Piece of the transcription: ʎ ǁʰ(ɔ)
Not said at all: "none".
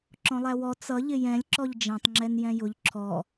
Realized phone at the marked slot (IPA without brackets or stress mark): ɔ